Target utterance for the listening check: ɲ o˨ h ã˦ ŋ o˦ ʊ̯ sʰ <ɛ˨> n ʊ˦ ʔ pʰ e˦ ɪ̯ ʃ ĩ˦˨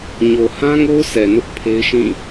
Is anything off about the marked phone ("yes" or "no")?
no